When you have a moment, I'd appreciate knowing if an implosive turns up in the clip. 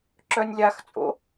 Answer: no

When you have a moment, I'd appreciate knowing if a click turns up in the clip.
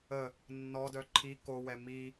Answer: yes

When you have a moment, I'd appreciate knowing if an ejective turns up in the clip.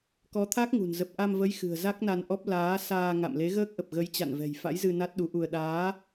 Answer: no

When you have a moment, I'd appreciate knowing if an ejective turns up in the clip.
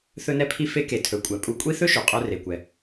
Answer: yes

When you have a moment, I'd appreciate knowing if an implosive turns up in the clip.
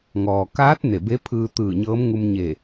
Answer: no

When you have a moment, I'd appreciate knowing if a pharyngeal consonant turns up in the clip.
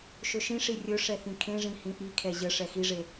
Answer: no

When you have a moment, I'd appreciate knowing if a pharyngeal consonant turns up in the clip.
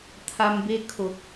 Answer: no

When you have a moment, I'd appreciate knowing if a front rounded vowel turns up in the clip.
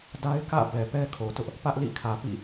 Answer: no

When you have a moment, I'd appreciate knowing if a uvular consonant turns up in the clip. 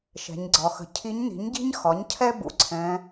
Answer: no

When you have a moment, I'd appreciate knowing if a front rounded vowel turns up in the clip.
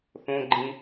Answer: no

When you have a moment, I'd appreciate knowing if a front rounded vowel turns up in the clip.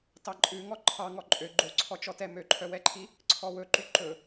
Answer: yes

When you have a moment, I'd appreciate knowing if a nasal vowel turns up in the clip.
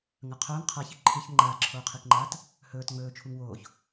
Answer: no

